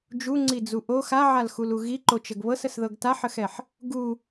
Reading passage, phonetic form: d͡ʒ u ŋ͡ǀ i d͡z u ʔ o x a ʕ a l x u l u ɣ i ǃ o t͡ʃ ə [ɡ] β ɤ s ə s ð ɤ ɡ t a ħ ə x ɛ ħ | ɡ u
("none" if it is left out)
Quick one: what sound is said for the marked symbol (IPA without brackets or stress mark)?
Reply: ɡ